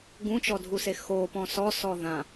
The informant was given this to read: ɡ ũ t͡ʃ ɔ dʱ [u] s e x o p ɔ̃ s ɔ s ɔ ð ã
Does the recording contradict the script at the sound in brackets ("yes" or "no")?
no